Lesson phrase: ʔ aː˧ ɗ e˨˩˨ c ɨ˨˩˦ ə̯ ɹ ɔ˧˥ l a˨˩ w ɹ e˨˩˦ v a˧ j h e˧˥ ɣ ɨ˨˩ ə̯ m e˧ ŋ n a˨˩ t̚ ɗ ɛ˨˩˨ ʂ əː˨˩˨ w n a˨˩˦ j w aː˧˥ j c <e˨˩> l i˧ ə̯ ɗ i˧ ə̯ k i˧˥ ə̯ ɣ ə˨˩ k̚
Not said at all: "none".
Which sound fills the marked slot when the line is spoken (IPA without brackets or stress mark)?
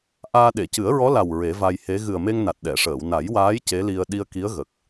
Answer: e˧˥